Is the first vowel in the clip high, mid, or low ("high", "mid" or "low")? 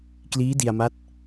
high